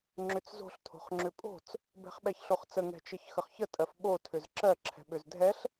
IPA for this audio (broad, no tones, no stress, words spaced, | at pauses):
ŋ͡ǁʏt͡szo̤ɬ tʰo̤χŋ͡ǁʏpʼo̤t͡s | bɛ̤χɓɛçɬoχt͡sə ŋɛ̤t͡ʃəçxəχçə tʼɜfɓo tʰʏzǁɜ ǁʰɛ̤ɓʏzdʱɛɬ